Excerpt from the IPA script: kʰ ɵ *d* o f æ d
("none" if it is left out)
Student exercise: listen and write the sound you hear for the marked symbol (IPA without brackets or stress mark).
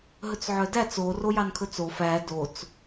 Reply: t͡s